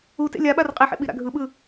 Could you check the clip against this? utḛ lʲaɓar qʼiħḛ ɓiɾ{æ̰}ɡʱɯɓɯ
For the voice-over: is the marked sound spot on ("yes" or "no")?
no